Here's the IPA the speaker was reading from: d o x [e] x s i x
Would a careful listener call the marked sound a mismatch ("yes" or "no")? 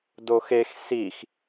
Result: no